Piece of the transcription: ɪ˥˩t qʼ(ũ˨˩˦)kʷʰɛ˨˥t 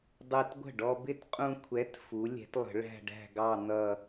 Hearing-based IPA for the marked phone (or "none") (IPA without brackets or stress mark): ũ˧